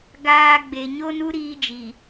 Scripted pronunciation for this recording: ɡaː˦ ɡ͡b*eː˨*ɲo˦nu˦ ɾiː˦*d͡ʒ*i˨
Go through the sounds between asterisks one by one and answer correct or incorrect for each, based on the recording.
incorrect: e˨, correct

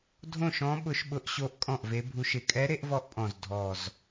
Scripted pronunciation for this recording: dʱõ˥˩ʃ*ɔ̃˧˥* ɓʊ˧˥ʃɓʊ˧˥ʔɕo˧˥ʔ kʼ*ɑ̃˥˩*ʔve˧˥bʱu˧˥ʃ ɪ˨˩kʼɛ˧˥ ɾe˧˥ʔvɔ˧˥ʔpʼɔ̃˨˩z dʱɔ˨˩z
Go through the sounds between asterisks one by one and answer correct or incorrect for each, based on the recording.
correct, incorrect: ɔ̃˥˩

